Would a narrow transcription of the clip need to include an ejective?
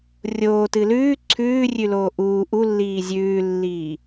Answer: no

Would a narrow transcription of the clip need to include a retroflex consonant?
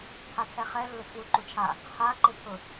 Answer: no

